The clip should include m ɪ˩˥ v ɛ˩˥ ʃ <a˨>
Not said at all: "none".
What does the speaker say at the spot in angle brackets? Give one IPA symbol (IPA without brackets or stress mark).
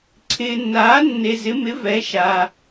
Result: a˨